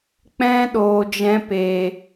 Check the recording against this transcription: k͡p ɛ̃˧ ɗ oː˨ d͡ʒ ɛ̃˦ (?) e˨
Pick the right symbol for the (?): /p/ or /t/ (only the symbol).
p